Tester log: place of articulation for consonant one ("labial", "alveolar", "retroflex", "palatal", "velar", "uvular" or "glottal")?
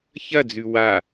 palatal